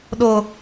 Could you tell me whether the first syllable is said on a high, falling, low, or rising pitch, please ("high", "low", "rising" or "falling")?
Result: high